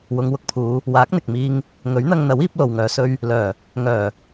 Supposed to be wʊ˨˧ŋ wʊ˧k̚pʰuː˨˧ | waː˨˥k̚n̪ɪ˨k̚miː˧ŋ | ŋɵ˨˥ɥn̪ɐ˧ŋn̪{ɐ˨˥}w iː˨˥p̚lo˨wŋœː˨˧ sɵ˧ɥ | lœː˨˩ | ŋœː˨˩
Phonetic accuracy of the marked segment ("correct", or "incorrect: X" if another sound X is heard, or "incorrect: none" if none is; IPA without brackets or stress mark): correct